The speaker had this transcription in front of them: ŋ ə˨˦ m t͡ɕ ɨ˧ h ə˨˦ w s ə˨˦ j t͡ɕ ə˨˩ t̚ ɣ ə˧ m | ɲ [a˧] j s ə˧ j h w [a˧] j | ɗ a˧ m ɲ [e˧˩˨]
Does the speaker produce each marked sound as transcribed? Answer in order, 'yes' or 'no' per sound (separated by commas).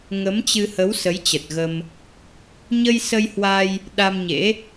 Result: no, yes, no